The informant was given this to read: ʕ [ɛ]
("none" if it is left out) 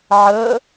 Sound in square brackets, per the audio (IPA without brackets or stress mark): ə